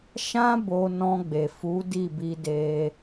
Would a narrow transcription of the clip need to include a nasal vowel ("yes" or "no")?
yes